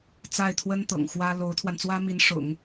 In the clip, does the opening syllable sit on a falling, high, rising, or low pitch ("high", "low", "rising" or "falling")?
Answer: falling